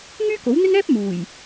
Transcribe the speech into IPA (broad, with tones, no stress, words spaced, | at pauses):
ŋyː˥ko˨˥wn̪ɪ˥ŋɛː˥p̚ muː˨˩j